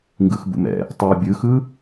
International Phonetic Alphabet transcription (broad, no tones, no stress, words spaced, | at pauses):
ŋɡɯxbṵmɛ̰ | tˤɛ bʲɯxɯ